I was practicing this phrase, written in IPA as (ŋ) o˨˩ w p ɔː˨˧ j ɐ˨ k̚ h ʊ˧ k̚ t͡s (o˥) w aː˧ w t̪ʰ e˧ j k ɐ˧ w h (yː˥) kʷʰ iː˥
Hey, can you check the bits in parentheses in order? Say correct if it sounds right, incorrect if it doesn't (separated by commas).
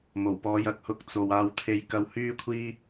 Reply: incorrect, incorrect, correct